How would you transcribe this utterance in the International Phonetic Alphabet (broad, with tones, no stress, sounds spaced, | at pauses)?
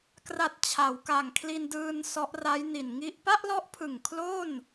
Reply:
k r a˨˩ t̚ t͡ɕʰ a˩˦ w k a˨˩ ŋ kʰ l i˧ n d ɯː˧ n s ɔ˦˥ ʔ r a˦˥ j n i˨˩ n ŋ i˥˩ ʔ p a˥˩ ʔ l ɔ˦˥ ʔ pʰ ɯ˨˩ ŋ kʰ l o˥˩ n